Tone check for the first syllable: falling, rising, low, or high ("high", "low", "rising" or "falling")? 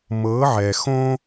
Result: rising